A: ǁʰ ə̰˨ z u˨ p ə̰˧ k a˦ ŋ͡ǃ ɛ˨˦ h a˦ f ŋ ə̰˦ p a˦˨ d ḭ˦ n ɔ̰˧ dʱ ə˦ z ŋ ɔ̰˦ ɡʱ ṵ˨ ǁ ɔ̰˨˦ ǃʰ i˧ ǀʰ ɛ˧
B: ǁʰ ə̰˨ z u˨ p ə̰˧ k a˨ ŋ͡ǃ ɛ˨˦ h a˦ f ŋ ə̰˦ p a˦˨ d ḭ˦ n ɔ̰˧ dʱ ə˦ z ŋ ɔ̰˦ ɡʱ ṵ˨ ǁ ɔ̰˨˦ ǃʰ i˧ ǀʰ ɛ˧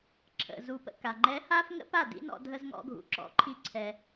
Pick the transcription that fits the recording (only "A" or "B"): B